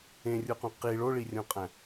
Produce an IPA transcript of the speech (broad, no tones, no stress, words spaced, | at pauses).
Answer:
ẽrʲuqũ qi ɭoɭirʲõqʼæ̃